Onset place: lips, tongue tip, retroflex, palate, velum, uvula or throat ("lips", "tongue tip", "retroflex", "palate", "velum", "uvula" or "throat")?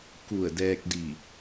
velum